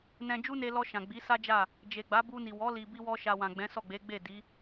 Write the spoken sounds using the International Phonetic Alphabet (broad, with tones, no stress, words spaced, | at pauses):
nɛ̃˧ d͡ʒu˦ne˧lɔ˧ ʃã˨ɡ͡bi˨˦sa˦d͡ʒa˦˨ | d͡ʒe˨ɡ͡ba˨˦bu˧ni˨ wɔ˨˦ li˧bi˦wɔ˦ʃa˧ wã˨ɡ͡bɛ̃˨˦sɔ˦˨ɡ͡be˨˦ ɡ͡be˦˨di˨˦